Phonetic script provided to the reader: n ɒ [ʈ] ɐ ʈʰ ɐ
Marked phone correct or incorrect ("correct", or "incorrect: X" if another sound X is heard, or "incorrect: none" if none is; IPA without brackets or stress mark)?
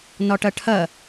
correct